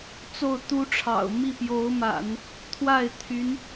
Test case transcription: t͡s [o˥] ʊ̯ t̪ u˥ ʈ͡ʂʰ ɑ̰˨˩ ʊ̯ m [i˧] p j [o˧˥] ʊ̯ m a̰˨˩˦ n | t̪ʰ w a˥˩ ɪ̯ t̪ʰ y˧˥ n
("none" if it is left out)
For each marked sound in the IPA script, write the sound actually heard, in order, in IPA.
o˥˩, i˥˩, o˧˥

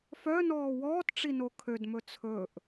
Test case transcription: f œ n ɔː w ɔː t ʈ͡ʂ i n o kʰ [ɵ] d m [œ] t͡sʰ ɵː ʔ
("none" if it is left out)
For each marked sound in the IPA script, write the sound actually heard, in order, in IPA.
ø, ɵ

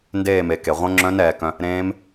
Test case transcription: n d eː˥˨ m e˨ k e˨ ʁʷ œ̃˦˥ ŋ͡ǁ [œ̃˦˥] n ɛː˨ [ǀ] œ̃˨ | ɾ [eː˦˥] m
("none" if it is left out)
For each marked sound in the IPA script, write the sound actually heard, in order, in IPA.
œ̃˦˥, k, ẽː˦˥

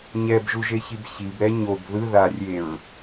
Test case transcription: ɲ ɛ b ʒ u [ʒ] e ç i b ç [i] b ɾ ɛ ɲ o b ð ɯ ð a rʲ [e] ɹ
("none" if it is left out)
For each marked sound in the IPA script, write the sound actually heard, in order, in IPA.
ʒ, i, e

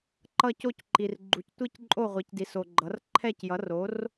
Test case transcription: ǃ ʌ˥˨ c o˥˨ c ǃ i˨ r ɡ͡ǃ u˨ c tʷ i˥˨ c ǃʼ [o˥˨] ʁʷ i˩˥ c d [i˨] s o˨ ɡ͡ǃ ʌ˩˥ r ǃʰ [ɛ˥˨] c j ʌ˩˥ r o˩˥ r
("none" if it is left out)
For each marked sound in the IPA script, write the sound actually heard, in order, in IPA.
o˥˨, i˨, ɛ˥˨

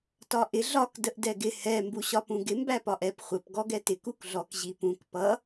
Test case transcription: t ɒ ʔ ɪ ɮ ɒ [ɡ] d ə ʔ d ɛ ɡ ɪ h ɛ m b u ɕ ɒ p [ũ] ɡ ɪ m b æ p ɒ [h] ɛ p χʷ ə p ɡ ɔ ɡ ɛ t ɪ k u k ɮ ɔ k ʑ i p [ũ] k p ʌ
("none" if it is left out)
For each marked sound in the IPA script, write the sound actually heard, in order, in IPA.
k, ũ, ʔ, ũ

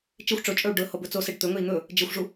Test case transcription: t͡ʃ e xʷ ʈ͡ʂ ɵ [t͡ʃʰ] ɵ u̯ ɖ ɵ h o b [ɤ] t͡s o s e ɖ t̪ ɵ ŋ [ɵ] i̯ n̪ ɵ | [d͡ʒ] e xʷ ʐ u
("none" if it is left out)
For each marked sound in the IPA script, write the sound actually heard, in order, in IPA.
t͡ʃʼ, ɵ, ɵ, d͡ʒ

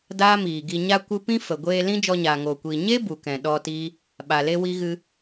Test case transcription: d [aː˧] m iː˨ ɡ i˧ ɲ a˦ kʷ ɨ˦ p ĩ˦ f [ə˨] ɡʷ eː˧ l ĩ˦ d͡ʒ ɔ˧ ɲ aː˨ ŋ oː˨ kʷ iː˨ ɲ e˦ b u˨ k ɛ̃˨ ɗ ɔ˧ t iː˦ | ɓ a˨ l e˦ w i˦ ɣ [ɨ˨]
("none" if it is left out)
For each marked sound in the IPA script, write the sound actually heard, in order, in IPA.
aː˦, ə˨, ɨ˦

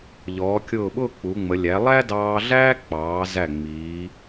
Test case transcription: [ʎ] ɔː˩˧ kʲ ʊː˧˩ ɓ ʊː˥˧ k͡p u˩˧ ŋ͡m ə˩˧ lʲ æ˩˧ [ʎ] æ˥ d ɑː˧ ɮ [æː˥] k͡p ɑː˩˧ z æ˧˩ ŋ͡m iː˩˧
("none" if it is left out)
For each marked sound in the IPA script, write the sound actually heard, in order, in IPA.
ʎ, lˠ, æː˥

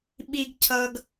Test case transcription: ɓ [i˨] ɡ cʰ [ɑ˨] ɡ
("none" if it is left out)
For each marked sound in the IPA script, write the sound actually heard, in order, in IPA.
i˨, ʌ˨

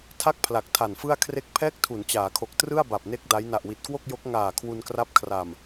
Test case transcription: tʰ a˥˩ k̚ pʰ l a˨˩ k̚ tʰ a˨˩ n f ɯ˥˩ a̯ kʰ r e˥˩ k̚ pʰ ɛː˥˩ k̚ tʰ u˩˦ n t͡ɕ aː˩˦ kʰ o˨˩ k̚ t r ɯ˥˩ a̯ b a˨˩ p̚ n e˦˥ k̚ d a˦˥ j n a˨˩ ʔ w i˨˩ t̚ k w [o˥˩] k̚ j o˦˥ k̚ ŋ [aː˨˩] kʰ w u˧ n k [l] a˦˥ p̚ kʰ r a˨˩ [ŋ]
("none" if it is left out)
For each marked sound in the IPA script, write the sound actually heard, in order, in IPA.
o˥˩, aː˨˩, r, m

